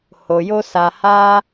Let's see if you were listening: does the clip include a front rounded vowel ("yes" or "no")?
no